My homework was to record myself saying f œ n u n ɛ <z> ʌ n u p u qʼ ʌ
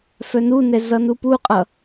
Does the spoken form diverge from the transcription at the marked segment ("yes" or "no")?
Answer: no